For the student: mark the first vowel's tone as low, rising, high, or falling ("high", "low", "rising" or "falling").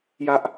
high